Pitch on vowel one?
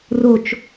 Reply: falling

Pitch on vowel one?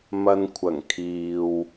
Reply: low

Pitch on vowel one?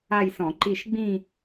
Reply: falling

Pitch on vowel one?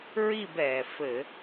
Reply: falling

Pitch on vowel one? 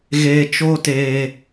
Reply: low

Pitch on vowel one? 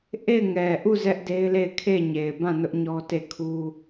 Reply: falling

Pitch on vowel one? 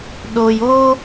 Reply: low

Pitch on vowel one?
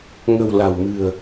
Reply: low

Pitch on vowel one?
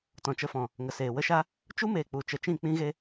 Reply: low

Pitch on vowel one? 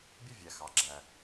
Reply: falling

